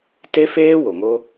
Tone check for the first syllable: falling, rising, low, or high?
high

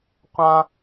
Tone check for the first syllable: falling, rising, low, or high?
high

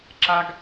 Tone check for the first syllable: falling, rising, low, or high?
high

